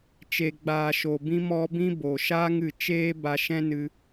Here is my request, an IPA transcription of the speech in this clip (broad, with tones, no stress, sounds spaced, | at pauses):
t͡ʃ e˨ ɡ͡b aː˨ ʃ o˨ b ĩ˧ m ɔ˧ b ĩ˦ b o˨ ʃ aː˧ ŋ ɨ˨ t͡ʃ eː˦ b a˧ ʃ ɛ̃˦ n ɨ˧